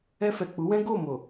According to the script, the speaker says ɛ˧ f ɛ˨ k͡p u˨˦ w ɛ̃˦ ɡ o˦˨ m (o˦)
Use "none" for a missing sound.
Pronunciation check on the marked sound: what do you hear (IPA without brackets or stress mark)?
o˨